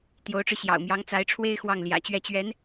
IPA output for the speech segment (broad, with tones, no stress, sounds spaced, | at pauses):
t̪ j o˧˥ ʊ̯ ʈ͡ʂ ɻ̩˧ ɕ j ɑ̰˨˩ ʊ̯ m j ɑ˧˥ ŋ t͡s a˧˥ ɪ̯ ʈ͡ʂʰ w e˥ ɪ̯ x w ɑ˥˩ ŋ l j ä̰˨˩ t͡ɕ ɥ ɛ˥˩ t͡ɕ ɥ ɛ˧˥ n